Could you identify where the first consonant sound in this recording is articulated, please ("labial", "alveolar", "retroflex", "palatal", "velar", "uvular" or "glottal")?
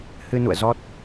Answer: glottal